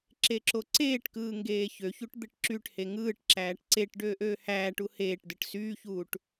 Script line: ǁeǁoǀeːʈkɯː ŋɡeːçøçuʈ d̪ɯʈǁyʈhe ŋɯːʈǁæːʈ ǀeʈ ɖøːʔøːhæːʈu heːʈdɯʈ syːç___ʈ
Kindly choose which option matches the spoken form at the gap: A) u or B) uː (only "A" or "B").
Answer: B